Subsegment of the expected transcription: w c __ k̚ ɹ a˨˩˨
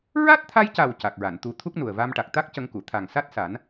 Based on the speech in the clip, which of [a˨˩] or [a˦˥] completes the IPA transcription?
a˨˩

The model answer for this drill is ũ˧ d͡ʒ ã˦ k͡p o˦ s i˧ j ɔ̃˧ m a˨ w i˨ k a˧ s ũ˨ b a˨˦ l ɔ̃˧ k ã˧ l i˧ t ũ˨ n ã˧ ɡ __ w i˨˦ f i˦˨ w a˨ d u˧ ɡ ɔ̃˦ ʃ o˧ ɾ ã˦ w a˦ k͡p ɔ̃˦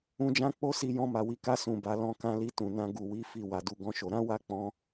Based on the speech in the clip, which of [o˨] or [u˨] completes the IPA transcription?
u˨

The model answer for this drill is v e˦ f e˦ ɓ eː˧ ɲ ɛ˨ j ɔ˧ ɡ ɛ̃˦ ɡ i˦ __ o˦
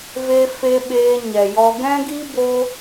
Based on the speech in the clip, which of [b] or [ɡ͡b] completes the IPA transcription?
b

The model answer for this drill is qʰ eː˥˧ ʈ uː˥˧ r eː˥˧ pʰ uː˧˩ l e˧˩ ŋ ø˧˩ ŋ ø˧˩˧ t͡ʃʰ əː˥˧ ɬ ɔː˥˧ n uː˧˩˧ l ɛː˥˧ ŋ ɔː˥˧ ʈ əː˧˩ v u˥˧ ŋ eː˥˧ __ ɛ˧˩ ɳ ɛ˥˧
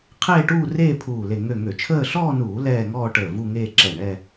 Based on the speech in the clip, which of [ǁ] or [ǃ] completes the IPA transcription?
ǁ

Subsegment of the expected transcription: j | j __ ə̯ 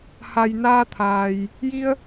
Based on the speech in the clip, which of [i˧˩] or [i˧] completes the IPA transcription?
i˧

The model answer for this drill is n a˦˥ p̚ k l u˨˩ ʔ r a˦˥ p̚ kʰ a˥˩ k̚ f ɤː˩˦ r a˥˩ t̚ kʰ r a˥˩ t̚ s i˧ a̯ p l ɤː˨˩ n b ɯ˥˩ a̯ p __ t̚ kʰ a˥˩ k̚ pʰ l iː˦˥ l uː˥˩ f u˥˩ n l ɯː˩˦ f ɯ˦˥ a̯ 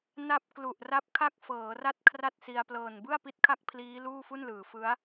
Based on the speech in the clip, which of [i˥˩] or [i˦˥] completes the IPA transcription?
i˦˥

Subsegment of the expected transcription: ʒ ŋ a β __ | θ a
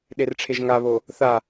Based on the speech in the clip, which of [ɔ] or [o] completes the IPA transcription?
o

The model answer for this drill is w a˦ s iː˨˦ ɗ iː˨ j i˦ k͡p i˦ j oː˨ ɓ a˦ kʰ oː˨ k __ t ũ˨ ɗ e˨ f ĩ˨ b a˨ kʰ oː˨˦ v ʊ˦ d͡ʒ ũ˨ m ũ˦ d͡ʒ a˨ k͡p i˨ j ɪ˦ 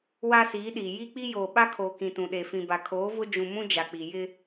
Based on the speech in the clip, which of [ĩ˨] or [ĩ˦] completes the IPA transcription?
ĩ˨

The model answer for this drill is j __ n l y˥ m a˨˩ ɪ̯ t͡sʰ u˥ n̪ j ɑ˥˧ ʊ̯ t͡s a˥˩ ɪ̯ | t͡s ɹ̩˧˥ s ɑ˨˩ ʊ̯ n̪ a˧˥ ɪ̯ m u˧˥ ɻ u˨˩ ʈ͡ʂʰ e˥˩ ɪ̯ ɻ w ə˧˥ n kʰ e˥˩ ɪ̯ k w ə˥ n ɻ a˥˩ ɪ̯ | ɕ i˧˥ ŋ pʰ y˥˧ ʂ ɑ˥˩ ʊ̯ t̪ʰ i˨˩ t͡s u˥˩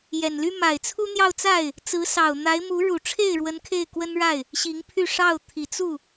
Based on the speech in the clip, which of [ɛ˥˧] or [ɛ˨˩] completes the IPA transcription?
ɛ˨˩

